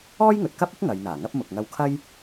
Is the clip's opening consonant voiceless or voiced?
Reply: voiced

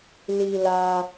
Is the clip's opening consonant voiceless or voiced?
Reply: voiced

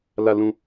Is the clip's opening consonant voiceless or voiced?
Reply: voiced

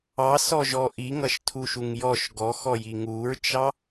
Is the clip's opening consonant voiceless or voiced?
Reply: voiceless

